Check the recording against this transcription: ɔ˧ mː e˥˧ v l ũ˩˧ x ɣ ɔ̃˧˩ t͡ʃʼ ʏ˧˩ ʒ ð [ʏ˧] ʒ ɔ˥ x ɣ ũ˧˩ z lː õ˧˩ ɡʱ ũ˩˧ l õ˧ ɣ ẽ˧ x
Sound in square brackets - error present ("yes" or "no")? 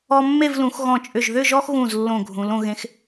yes